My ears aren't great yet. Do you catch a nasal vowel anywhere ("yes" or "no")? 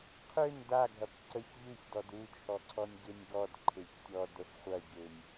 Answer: no